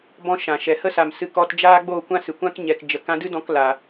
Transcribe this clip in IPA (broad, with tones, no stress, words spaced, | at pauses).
bɔ̃˧ʃã˨ʃɛ˨ hə˦sa˨m sɨ˧ kɔ˧td͡ʒaː˦ ɡ͡bo˦˨kʷã˦ sɨ˨kʷã˦k ɲɛ˧kd͡ʒə˧ kã˧dɨ˦dɔ̃˧k la˦